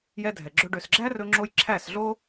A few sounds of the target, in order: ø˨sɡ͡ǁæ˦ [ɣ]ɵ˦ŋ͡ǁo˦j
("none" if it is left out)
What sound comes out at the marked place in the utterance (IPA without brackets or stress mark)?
r